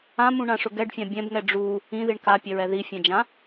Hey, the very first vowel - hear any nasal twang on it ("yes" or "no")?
yes